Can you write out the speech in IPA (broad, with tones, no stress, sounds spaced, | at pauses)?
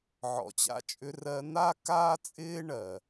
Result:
ʕ ɔ̰˩ t͡ɕ a̰˧ t͡ʃʼ ʏ˧ r ɜ˧ n̪ a˥ k aː˥ t͡sʼ ɪː˥ ɳ ɜ˩